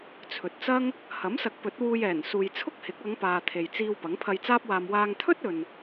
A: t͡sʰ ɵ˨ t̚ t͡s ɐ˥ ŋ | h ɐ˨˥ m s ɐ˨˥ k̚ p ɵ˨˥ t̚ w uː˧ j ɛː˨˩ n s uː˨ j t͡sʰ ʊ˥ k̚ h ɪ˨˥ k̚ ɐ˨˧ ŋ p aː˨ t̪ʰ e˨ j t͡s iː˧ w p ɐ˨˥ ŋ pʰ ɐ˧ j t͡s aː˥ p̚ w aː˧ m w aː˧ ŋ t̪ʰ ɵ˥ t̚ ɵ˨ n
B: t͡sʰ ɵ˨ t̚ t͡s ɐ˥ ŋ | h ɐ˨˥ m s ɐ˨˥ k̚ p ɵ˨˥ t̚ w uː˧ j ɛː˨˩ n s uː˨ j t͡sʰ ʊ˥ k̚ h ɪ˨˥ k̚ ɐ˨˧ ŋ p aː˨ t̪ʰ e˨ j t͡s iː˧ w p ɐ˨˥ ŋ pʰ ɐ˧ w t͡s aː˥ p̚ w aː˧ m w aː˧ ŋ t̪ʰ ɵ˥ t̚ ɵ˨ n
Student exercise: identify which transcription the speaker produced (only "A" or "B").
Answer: A